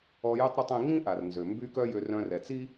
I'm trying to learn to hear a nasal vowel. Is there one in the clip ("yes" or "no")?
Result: yes